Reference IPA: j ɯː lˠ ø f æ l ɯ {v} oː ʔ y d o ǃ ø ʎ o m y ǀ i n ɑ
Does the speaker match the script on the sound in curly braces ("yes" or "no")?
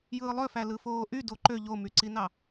no